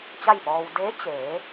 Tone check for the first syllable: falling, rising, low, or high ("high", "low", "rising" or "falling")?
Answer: falling